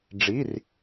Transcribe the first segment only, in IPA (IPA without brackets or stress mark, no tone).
ɖ͡ʐ